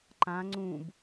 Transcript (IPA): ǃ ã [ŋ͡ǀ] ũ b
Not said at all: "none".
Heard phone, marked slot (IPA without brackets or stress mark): ŋ͡ǀ